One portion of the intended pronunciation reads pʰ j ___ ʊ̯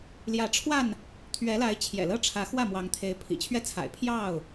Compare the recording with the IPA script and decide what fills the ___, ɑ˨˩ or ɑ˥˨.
ɑ˥˨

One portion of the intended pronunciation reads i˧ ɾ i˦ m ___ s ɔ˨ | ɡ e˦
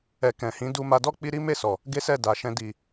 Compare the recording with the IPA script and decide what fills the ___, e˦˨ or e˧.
e˦˨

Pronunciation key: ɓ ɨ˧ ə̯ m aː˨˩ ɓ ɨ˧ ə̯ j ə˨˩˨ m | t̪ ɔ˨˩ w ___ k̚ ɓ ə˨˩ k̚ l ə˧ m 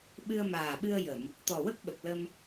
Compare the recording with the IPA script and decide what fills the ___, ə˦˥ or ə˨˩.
ə˦˥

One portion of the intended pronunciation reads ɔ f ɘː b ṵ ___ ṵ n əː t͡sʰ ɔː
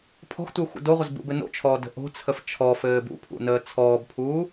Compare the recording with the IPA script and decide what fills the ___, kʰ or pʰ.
pʰ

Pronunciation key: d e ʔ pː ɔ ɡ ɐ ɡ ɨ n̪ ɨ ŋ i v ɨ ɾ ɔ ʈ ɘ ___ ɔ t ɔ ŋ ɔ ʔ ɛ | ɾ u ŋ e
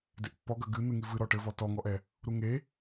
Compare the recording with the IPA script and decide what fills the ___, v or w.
v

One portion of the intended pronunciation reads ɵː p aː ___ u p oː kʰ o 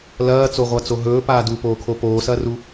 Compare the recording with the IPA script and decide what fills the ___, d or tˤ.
d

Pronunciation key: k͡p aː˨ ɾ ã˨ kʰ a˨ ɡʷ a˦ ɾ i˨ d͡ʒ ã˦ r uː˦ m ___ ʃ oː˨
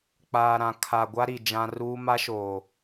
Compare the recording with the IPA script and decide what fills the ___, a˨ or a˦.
a˦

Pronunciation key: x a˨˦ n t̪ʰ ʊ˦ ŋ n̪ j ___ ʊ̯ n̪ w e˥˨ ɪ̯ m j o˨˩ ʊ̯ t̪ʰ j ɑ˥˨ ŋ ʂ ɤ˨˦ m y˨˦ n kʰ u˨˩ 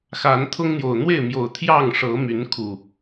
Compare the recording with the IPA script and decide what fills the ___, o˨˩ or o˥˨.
o˨˩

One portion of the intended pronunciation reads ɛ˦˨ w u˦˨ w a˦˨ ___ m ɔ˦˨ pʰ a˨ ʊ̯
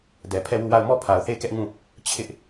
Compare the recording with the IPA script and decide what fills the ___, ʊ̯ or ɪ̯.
ʊ̯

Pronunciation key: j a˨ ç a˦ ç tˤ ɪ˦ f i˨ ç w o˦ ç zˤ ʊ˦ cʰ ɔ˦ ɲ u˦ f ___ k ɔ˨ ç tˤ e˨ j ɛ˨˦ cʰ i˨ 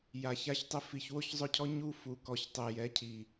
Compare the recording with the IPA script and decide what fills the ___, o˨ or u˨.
u˨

